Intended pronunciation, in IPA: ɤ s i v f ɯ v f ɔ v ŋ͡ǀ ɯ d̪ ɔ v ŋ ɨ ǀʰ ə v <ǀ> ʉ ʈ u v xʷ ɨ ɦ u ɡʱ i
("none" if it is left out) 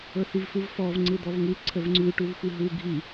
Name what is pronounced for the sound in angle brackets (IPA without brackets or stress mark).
ŋ͡ǀ